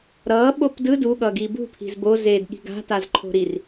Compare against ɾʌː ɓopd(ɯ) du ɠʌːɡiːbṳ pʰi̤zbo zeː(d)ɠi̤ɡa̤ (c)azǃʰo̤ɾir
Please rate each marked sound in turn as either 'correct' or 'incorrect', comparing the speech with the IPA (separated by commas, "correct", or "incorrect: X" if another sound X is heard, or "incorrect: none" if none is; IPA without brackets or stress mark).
correct, correct, incorrect: t